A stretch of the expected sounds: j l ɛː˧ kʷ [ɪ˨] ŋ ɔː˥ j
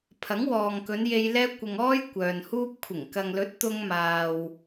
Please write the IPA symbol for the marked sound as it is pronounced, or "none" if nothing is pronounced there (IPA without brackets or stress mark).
ɪ˨